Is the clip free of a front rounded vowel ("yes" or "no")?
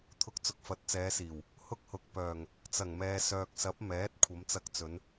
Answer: no